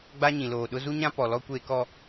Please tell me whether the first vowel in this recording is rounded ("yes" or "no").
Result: no